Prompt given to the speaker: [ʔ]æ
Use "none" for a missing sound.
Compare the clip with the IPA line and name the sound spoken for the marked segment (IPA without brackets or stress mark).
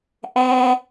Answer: ʔ